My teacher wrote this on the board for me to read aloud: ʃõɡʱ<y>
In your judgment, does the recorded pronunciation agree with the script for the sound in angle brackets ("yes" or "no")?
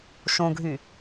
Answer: yes